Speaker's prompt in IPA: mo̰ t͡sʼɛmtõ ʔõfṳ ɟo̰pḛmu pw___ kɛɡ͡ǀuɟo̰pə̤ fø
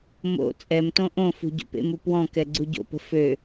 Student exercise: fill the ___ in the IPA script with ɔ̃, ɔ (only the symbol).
ɔ̃